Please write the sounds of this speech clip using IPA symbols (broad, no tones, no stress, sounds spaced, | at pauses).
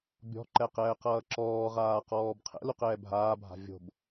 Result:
bʲ ɔ̤ ǃ ɛ q ɛː q ʌː ǁ ɔː ʁ aː q ɔː b qʰ ɛ̰ l u q ɛː bʱ aː bʱ a̤ vʲ o̤ b